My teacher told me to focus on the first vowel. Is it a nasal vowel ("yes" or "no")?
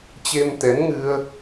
no